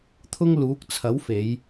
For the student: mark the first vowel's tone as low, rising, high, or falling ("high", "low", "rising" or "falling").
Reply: high